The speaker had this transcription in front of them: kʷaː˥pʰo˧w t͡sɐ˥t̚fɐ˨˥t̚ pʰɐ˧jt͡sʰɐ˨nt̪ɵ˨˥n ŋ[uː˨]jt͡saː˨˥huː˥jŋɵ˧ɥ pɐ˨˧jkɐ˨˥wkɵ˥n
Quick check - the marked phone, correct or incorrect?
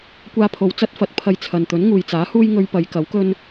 correct